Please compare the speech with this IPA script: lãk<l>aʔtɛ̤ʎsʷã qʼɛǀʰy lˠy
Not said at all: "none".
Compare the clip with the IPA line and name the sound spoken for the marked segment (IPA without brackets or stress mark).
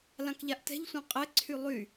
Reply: ʎ